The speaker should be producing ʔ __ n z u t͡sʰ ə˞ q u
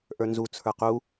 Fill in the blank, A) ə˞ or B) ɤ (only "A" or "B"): A